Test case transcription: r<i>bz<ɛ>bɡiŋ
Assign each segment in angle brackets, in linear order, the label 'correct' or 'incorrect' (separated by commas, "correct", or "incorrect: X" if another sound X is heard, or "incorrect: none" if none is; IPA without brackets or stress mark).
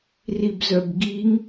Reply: correct, incorrect: œ